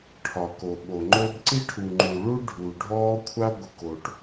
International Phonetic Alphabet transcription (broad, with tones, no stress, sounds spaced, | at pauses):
ʈʰ ɒ˨ k o˨ ɓ o˨ ŋ͡ǃ o˦ b ǀ i˦ ʈʰ u˨ ŋ͡ǃ u˨ ɭ u˦ ɖʱ u˨ ɖʱ ɔː˦ kʷʰ a˦ ɡʷ ə˨ k o˨ ʈ